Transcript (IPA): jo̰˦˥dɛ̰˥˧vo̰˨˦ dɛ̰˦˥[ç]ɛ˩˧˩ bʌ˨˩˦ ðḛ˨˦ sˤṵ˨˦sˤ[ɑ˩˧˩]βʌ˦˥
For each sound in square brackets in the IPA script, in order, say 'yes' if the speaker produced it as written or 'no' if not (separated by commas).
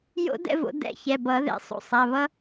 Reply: yes, no